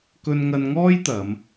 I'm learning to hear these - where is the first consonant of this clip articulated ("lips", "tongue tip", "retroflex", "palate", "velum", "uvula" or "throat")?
velum